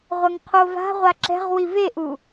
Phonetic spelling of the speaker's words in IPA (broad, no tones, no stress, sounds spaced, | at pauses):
ʁʷ ɐ ŋ qʰ o v a̤ ʁʷ a ǁ ɛ̤ ʁ w i v e ʔ u